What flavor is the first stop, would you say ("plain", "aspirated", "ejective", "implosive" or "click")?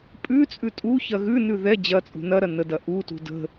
ejective